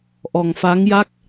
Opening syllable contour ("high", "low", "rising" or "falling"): low